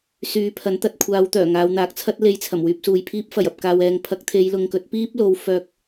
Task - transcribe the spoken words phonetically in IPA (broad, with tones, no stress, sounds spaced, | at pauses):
s yː˨˧ pʰ ɐ˨˥ n t̪ ɐ˧ t̚ kʷʰ aː˨˧ w t̪ œː˨˩ ŋ aː˨˧ w n̪ aː˨˥ k̚ t͡sʰ ɐ˥ t̚ l e˧ j t͡sʰ ɐ˨˩ m w yː˧ p̚ s uː˨ j pʰ iː˧ p̚ f ɐ˨˩ j ɐ˨ p̚ k aː˨ w ɛː˨ ŋ pʰ ɐ˧ k̚ t̪ʰ e˨˧ j l ʊ˨ ŋ k ɵ˨˥ t̚ p iː˥ p̚ l o˨˥ w f œː˧ k̚